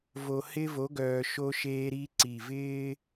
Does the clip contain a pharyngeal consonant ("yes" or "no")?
no